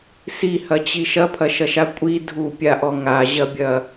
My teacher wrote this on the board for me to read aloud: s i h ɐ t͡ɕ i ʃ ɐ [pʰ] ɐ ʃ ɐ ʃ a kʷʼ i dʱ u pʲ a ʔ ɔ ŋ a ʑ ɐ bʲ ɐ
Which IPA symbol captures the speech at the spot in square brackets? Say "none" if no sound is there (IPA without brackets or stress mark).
pʰ